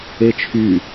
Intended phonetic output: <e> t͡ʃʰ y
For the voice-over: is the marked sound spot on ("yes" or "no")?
yes